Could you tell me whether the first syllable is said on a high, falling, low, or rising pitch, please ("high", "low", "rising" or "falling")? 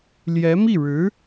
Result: rising